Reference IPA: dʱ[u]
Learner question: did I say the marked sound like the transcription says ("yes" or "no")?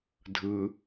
no